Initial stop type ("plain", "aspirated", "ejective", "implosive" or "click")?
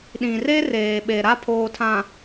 implosive